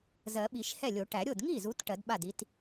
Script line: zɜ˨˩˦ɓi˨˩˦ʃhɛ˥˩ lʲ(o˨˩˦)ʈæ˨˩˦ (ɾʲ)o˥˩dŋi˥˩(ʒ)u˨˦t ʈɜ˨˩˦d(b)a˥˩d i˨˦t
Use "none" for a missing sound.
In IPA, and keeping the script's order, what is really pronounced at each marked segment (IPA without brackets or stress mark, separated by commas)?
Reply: o˨˩˦, ɾʲ, z, ɓ